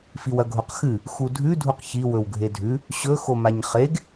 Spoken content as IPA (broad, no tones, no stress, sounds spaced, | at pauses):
f i w ɐ ɡʱ o q x ɨ | x u dʱ ʉ dʱ u q ç i w ɵ w ɡʱ e dʱ ʉ | ɕ ɵ x o m a ɲ χ e ɡ